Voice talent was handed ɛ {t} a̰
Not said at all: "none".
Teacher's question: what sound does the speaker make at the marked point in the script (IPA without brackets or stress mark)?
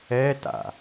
t